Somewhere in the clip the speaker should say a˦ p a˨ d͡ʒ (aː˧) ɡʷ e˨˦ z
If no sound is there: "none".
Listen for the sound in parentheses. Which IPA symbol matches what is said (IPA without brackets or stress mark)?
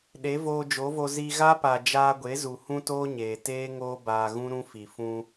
aː˧